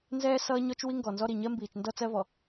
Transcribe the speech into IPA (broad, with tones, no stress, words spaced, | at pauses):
nzɛː˦ sʌː˦ɲɔ˦t͡ʃ wi˦ŋɡɔ˨nzɔ˦ɾi˨ ɲɜ˦mbiː˨t͡ʃndʌ˦ t͡sɜ˦vɔ˨